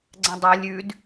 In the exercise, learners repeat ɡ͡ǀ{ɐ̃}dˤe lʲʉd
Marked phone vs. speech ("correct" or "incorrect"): correct